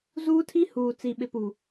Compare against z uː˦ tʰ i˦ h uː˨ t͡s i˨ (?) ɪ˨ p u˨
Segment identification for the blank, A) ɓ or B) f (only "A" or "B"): A